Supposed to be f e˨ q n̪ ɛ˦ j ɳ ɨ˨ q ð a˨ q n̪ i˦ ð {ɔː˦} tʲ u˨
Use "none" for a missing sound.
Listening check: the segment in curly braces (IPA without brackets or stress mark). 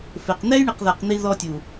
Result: ɔ˦